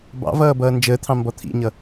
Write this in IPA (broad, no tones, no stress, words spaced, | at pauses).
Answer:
bɑ̰vʌː bʌːnd͡ʒəːt̪ʰɑ̃ mbɔt̪ʰḭɲʌ